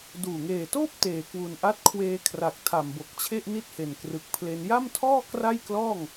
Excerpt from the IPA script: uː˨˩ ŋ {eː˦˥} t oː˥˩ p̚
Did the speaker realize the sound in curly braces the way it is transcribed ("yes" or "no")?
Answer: no